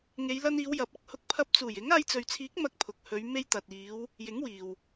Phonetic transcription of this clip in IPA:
ŋe˨˧jlɐ˧niː˨˧w jɐ˨p̚ɐ˧k̚hʊ˧k̚ pʰɐ˧p̚t͡suː˨˩jɪ˨˥ŋ aː˧jt͡sɵ˨ɥt͡sʰiː˨˥k̚ mɐ˧k̚pʰʊ˨k̚hɵ˨˧ɥ me˧jt̪ɐ˨t̚iː˨˧w | jɪ˨˥ŋwiː˨w

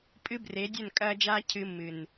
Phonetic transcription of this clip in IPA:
pʼɨ˦bre˨˦dʲɵ˦˨n kʼɐː˦d͡ʒaː˦ cʰɨ˦ mːɨ˨n

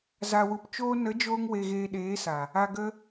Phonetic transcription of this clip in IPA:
za˨wu˨p t͡ʃoː˧nə˨˦d͡ʒoː˧ŋ we˨ɣeː˨ ɗeː˨˦sa˨ | a˨ɡə˧

